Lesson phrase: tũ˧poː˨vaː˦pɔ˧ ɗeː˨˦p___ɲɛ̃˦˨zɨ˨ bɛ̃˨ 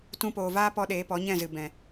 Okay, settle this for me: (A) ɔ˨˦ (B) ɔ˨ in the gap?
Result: A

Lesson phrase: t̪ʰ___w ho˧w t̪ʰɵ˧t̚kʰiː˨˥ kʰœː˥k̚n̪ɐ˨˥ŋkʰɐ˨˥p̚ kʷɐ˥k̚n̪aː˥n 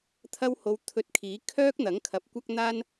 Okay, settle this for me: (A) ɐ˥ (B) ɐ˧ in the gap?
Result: A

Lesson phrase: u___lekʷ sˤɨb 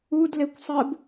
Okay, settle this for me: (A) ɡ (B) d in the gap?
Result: B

